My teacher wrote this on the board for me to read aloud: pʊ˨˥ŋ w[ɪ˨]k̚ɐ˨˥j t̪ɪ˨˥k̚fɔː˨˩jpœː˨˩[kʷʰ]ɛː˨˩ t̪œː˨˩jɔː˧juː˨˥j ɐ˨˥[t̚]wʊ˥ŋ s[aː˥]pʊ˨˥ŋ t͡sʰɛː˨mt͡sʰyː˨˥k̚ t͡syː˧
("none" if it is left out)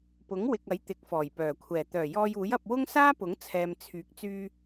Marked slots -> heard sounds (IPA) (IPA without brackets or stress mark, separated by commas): ɪ˨, kʷʰ, p̚, aː˥